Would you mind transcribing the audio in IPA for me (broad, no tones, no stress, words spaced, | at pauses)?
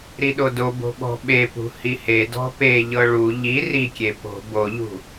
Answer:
ɾiɗodobo̤ ɓɔ̤ɓepṳ hihedɔ̤ peʎɤ ɭu ʎi rikʲe po̤ boʎṳ